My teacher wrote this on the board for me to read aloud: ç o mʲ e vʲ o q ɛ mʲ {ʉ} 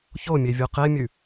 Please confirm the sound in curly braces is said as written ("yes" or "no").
yes